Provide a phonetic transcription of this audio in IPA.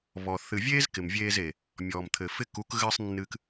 β ɔ˨ θ ɨ˨ vʲ eː˦ z k ɪ˨ m vʲ eː˧ z e˨ | mʲ ɔː˨ m t̪ʰ ɘ˨ f ɪ˧ k u˨˦ k ɣ ɘː˧ sˤ nː ɨ˧ k

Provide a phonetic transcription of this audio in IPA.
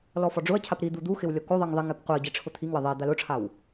l ɔ f ɔ ɖ͡ʐ ʊ ɐ̯ cʰ a p ɾ i d̪ u d̪ u x ɪ w lʲ ɔ k o ðˤ i ŋ ðˤ i ŋ ɛ p qʷ e ɐ̯ ɟ i ʈ͡ʂʰ ʊ t̪ʰ i ŋ w ɪ ðˤ ɛ d̪ a l ʊ ʈ͡ʂʰ a w

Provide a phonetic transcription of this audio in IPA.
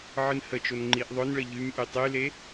ʕ ɨ n h ə t͡ʃ o n ŋ͡ǃ i ʔ ðˤ ʊ n ɭ ə ʎ y m ʔ y tˤ y l e

